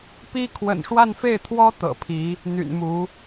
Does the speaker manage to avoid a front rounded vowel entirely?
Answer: no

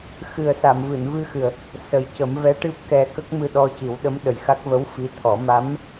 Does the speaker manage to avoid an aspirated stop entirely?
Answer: no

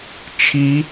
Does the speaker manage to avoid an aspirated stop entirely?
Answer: no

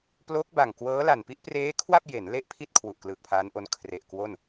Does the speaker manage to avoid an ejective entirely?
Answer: yes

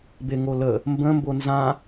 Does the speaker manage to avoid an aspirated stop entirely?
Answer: yes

